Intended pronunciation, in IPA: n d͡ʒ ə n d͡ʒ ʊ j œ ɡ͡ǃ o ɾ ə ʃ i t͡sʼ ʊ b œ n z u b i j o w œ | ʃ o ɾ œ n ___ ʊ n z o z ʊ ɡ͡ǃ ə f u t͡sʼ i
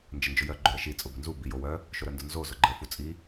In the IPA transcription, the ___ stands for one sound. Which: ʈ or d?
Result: d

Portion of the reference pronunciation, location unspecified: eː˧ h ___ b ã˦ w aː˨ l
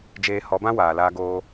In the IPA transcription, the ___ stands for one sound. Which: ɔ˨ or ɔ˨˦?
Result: ɔ˨˦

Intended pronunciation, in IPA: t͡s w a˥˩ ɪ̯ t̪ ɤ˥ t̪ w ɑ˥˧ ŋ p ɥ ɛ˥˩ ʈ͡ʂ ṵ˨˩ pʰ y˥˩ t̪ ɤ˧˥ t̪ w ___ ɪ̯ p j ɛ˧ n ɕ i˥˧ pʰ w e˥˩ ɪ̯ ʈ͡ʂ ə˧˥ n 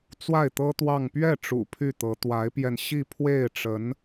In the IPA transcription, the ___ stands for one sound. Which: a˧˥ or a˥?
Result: a˧˥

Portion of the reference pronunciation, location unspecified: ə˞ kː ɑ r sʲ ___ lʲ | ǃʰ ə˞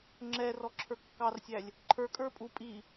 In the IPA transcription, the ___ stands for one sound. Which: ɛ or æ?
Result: æ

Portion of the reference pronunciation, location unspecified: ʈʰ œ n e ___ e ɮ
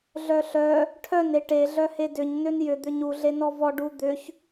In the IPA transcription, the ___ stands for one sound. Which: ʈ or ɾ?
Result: ʈ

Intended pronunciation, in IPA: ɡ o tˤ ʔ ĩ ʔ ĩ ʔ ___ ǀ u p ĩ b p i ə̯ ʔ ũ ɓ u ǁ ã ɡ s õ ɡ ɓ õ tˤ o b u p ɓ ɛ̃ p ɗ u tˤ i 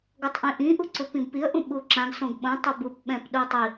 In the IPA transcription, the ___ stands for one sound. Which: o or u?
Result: u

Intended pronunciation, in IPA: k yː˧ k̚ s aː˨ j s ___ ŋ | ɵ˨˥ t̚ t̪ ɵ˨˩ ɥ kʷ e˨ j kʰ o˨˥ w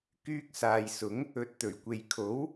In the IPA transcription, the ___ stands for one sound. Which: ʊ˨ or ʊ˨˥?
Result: ʊ˨˥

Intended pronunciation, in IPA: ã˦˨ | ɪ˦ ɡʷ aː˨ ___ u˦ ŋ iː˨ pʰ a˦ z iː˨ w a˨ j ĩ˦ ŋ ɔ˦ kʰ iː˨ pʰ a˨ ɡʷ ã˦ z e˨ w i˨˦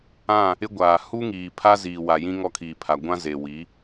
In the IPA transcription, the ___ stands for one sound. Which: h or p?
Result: h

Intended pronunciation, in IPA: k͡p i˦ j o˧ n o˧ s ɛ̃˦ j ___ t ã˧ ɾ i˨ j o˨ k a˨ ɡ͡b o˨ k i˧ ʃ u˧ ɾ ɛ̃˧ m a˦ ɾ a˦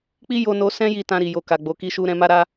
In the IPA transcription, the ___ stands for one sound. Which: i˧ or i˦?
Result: i˧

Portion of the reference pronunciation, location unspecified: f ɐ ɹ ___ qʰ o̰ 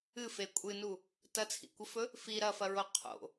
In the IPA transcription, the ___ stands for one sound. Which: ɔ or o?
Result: o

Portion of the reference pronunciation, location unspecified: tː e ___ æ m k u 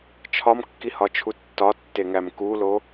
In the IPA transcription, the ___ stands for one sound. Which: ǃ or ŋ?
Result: ŋ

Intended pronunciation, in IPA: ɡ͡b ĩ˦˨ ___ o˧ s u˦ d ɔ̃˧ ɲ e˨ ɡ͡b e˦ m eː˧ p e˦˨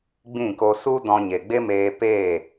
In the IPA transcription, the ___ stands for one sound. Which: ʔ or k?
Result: k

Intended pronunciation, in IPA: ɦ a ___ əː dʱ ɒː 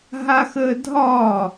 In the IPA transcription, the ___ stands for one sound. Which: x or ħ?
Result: x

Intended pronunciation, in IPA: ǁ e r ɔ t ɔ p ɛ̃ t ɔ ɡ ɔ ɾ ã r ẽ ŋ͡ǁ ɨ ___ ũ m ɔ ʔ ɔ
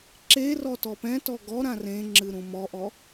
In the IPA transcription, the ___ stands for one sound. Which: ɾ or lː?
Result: ɾ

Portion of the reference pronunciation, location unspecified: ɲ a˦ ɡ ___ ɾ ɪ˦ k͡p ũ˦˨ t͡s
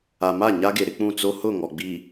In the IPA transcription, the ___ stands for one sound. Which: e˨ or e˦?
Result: e˨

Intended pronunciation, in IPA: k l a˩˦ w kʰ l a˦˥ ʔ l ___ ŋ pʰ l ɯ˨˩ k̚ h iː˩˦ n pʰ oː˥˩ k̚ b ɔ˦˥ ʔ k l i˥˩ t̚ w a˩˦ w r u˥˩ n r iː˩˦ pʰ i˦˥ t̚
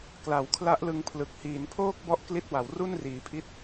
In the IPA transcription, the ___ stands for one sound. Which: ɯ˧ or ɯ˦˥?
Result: ɯ˧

